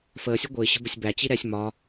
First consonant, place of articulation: labial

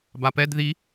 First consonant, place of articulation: labial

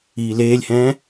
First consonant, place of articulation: alveolar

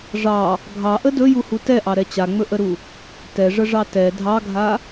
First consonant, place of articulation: retroflex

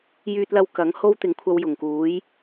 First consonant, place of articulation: palatal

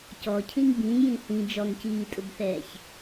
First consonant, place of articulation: palatal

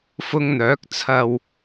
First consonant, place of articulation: labial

